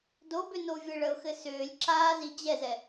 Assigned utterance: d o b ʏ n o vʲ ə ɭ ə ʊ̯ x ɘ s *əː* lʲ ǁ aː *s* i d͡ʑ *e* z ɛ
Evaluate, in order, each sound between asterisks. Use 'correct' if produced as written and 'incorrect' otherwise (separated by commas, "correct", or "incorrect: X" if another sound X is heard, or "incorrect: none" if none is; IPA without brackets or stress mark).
incorrect: ʏː, incorrect: z, incorrect: ɛ